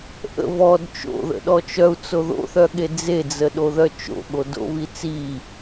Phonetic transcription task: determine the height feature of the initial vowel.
mid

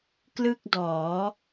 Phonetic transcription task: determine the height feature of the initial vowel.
high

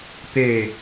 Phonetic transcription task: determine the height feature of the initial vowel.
mid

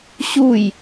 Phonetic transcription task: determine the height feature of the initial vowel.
high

